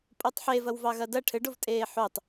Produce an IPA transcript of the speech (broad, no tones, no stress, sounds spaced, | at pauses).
pʼ o tˤ ħ e v ɐ w v ɑ ɣ ɐ d ɐ ʈʰ ɘ ɖ o v tʼ eː ħ o tˤ